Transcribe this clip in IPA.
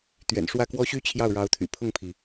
t̪ɥɛ̰˨˩nʂwä˥˩kwɔ˥ɕy˥ t͡ɕʰjɑ˥˩ʊ̯ɻɑ˧˥ʊ̯t̪ʰy̰˨˩ pʰʊ˥˩ŋpʰi˩

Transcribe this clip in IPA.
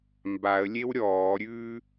mbaə̯lʲew ɾʲɔːɾʲʉː

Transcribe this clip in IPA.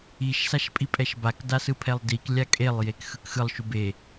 iʃ saʃpʼipʼɛʃbak dasɯpʰɛlˠdik lʲakʼelˠ jekxɯkxɯlˠ ʃube

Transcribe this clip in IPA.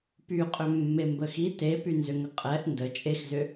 pyqʼʏ mːembəxi tepynzʏŋə qʼɛʔ ndə t͡ʃʼexzʏ

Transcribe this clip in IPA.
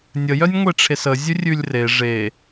nʲəjœnʲŋʷeʈ͡ʂʰes əzʲʉ rʲʉlʲre ʐe

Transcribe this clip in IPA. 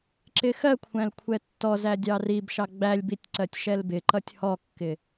ǁɪxɜkʷʰæ̃l kʷʰɛtːɔzæ dʲɑribʃɑ ɡ͡bælʲbitʲ ǀɜtʲʃɛlbɪǃʌtʲ hɔkːɪ

